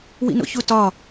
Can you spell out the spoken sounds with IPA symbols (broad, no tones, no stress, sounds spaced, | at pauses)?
w ḭ n o̰ ç u t ɒ